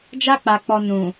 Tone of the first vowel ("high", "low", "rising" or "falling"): high